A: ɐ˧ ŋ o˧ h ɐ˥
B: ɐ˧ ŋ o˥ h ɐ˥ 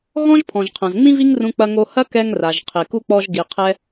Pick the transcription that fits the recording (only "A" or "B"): A